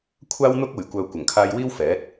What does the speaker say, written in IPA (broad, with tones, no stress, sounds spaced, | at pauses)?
kʷʰ aː˥ w n̪ ʊ˥ k̚ uː˨˩ j kʷ œː˨ kʷ ɐ˨˩ ŋ kʰ aː˧ j w iː˥ w f ɛː˨˥ t̚